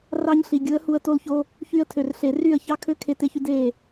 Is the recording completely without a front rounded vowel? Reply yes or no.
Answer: no